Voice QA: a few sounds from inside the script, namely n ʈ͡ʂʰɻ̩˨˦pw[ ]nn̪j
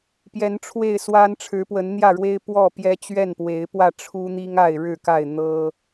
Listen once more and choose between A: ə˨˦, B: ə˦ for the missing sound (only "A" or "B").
A